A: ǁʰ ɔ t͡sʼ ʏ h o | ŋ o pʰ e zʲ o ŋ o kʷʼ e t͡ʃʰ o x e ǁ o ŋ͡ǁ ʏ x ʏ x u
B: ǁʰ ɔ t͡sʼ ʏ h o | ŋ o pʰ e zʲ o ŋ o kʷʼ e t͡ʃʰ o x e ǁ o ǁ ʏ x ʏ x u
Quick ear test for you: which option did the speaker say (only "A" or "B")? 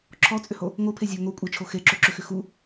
B